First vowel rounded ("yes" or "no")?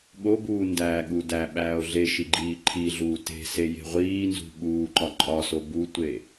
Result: yes